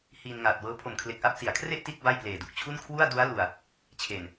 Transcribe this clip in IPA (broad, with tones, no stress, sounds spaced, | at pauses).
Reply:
h iː˧ n ŋ aː˨˩ t̚ w ɤː˦˥ pʰ o˨˩ m kʰ l e˨˩ k̚ ʔ a˥˩ p̚ s i˩˦ a̯ kʰ r e˥˩ ʔ t i˥˩ t̚ b a˥˩ j p l eː˨˩ d u˨˩ k̚ t͡ɕʰ u˥˩ n kʰ w u˥˩ a̯ d u˦˥ a̯ l u˨˩ a̯ | t͡ɕʰ e˨˩ n